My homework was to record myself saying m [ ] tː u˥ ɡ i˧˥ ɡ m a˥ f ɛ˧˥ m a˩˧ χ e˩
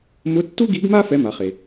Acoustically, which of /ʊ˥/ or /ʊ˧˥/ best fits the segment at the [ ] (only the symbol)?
ʊ˧˥